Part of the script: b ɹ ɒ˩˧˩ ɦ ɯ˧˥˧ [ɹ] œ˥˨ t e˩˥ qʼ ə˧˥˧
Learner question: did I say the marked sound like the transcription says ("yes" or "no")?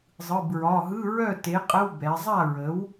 yes